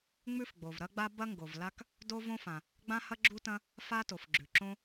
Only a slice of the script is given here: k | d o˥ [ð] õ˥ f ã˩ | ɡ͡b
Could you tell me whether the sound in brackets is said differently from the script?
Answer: yes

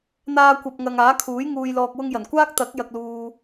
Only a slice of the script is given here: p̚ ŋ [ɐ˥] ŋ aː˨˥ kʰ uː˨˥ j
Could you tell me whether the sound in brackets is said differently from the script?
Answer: yes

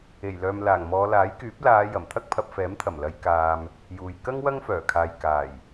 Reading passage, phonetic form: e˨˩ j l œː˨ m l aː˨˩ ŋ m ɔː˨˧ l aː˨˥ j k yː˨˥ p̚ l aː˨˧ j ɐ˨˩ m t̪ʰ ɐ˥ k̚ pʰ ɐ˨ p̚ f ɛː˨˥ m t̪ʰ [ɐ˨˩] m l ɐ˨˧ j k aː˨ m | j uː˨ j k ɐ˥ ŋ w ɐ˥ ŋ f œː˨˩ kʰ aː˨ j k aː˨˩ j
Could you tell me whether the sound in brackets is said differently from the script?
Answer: no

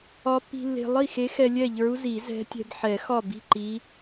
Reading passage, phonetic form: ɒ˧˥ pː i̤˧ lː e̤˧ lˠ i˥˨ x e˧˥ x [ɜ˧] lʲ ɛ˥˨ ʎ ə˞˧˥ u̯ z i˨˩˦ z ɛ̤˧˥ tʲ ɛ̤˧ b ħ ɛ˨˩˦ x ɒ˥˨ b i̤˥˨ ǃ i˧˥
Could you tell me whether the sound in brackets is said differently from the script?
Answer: yes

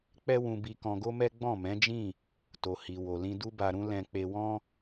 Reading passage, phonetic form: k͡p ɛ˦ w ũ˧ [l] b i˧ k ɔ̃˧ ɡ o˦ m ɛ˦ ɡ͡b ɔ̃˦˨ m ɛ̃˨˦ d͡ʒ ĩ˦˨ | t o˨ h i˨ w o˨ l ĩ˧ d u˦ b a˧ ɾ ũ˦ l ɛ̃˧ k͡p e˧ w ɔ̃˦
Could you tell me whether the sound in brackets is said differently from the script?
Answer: yes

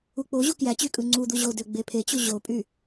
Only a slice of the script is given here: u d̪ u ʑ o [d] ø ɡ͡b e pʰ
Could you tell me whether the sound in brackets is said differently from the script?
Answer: no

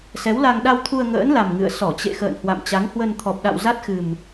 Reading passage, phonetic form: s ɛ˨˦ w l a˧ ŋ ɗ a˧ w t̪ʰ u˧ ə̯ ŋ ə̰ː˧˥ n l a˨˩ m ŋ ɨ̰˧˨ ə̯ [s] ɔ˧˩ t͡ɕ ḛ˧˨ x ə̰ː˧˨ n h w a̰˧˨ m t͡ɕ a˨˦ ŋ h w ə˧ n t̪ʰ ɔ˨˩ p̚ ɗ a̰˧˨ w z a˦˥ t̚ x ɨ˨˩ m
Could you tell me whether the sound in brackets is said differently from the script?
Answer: no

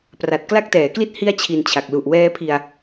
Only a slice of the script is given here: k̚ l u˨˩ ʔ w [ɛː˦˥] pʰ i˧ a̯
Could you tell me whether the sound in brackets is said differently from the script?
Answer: no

